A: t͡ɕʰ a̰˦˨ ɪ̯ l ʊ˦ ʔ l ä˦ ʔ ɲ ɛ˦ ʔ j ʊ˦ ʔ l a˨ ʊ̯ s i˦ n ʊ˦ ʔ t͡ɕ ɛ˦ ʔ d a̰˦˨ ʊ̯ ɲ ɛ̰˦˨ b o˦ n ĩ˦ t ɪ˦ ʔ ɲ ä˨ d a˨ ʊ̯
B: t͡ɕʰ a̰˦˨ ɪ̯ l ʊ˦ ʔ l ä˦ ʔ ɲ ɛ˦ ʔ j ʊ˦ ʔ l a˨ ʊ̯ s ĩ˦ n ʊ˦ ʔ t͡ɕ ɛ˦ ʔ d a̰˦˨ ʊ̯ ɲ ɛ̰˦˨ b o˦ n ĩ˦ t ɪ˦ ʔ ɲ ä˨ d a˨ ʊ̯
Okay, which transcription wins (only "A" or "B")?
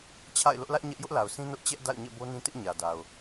B